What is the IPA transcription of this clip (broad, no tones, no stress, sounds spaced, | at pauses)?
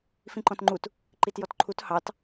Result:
f ĩ ǃ ɔ̃ t ŋ͡ǃ u t | ǃ i t j ɔ t ǃʰ u t h ɑ t